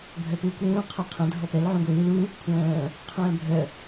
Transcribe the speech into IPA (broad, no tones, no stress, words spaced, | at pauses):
bʱœpuːkʷlũː qʰœqʰə̃ dʱɔpɛl ʕũɡʷɯːl u | kʷʰœ̃ː | qʰœ̃ːbʱœ